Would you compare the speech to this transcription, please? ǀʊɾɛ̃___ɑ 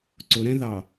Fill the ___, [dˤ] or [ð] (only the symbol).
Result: ð